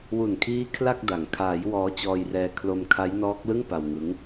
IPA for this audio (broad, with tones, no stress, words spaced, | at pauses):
wu˨˩nkʰiː˦˥ kʰla˥˩k̚da˩˦ŋ kʰaː˩˦j wɔː˦˥t͡ɕɔː˧jrɛː˧ kʰlo˧mkʰa˦˥jnɔː˦˥k̚lɯ˥˩ŋ pa˧wŋɯ˦˥ŋ